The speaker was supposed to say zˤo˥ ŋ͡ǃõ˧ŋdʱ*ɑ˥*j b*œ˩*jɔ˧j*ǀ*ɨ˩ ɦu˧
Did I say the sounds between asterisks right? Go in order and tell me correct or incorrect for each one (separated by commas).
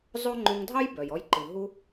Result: correct, correct, incorrect